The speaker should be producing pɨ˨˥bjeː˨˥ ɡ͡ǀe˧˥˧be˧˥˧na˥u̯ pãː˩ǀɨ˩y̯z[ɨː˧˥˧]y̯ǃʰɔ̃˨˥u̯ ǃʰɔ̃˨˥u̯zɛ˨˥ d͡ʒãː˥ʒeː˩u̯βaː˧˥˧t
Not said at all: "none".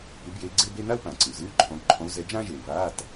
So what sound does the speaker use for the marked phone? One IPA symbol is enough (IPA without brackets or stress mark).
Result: ɨː˧˥˧